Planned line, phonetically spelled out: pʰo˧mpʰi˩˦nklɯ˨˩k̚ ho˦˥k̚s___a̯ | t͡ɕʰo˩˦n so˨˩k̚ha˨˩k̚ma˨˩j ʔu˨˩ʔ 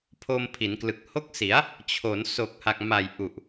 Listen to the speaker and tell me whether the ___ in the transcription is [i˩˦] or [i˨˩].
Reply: i˩˦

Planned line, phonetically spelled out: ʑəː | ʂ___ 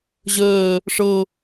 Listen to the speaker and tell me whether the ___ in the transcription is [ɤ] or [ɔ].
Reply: ɤ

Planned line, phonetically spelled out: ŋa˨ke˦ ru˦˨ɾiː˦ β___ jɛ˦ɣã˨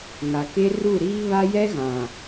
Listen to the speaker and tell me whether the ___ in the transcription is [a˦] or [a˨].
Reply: a˦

